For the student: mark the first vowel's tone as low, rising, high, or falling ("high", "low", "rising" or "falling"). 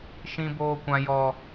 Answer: high